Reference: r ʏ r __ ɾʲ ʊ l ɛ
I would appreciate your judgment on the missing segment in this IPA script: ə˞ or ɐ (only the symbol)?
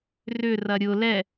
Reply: ɐ